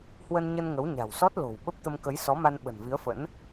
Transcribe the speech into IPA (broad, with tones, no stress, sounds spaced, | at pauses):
h w ə˧ n ɲ ə˧ n ŋ ə˨˦ w ɲ a̤˨˩ w s ɔ˦˥ t̚ l o̤˨˩ w ɓ ə˦˥ p̚ t̪ ə˧ m k ə˨˦ j s ɔ˨˦ m a˧ n ɓ ə̤˨˩ n v i˨˦ ə̯ f ə̰˧˥ n